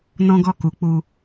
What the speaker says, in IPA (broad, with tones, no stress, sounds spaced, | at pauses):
n ɔ̃˦ ɡ ɔ˦˨ k u˨˦ k͡p u˧